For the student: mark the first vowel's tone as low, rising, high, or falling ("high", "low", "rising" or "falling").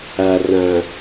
low